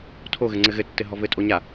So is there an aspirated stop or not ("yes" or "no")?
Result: yes